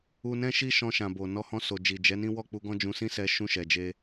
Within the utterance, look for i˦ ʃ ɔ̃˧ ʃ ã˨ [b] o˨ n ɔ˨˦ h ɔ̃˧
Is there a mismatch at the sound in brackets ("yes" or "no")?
no